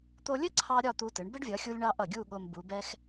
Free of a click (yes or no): no